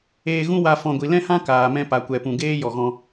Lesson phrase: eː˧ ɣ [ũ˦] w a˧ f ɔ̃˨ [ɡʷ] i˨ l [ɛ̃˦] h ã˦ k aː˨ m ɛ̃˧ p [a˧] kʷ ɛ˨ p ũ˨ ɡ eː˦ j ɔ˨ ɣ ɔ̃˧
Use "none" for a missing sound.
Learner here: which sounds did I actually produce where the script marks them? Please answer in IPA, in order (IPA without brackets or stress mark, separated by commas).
ũ˦, ɡʷ, ɛ̃˦, a˨